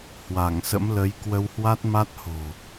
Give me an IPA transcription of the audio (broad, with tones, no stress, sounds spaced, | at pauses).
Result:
h w a˧˩ ŋ s ə̰˧˥ m l ə˨˦ j k w ə˧ w h w a˦˥ t̚ m a˦˥ t̚ h o̤˨˩